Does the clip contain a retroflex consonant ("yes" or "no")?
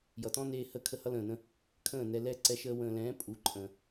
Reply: no